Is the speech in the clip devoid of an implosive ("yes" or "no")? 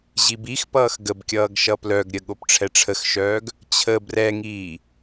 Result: no